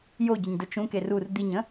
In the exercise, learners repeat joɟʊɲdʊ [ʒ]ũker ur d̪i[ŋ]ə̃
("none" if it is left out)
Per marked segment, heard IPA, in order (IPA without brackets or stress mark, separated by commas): t͡ʃ, ɲ